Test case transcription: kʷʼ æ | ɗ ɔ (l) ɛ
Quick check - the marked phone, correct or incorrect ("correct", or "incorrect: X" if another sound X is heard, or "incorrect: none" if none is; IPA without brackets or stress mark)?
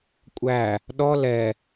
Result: correct